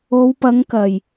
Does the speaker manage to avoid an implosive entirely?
yes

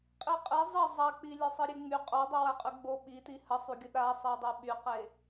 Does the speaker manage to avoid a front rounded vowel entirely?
no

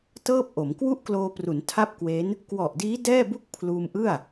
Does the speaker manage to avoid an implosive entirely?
yes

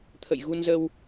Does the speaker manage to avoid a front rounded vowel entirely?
yes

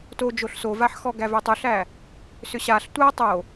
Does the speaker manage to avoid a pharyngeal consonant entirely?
no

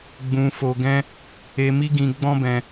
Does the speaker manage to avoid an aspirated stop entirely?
yes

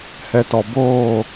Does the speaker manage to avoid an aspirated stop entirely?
yes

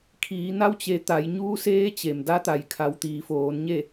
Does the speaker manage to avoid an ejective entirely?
yes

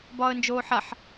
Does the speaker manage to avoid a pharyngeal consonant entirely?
no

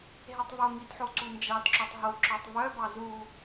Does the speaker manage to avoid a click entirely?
no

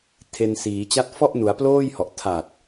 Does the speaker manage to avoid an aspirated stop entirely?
no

